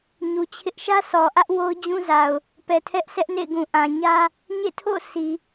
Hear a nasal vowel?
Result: yes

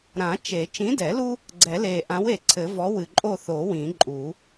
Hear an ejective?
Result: yes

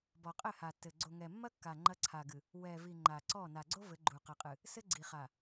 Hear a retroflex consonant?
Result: no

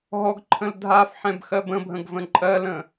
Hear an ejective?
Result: yes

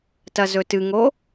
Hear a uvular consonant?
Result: no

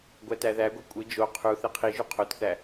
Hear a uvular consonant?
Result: yes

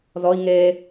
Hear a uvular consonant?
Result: no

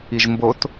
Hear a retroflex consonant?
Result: no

